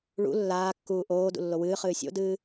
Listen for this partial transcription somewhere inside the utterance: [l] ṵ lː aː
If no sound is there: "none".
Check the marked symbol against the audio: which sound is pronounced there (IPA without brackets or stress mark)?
ɭ